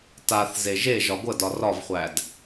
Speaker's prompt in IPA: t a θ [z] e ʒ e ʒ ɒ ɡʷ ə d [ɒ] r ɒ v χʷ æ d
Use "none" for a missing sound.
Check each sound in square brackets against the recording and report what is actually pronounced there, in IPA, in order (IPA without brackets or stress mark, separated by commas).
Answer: z, ɒ